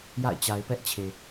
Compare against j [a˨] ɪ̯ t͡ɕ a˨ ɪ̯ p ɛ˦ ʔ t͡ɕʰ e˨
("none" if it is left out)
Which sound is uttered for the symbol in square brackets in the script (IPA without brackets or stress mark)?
a̰˦˨